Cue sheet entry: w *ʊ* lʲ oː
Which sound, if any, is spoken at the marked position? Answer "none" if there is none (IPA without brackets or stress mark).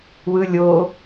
ɯ